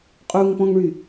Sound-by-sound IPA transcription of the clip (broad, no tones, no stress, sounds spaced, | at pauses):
qʼ u ŋ p ɔ̃ ŋ ɭ y